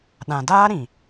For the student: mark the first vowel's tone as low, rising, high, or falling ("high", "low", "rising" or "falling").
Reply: low